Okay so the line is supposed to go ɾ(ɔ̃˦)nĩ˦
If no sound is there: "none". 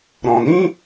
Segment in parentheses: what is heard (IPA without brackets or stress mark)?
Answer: ɔ̃˨